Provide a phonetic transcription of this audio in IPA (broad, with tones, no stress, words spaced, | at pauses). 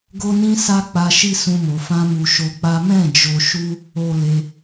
ɡo˦ nĩ˦sa˦k͡pa˧ ʃi˦sũ˧mo˨ fã˧mu˨ ʃo˧k͡pa˦ mɛ̃˦˨ d͡ʒo˧ʃu˦ | o˨ le˧